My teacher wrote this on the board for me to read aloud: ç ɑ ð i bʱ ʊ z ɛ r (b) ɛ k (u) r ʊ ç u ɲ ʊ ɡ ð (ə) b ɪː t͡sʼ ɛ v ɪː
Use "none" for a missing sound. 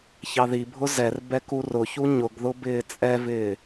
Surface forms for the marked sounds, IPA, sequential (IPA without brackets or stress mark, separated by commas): b, u, ʊ